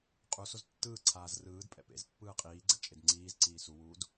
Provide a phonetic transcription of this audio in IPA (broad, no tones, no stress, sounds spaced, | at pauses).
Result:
qʼ u s o z tː ɯː ǀʰ aː z r ɯː d pʼ ɛ̰ p ḛ z pː ɯː qʼ iː ɡ͡ǀ ɛ̰ t͡ʃʼ e d ŋ͡ǀ iː z ǀ iː s u w uː d